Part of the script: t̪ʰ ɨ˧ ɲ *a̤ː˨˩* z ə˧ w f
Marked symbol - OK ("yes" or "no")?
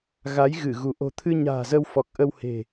yes